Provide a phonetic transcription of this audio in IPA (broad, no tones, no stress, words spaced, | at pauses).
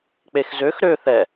k͡pexzøx ɾø θɛ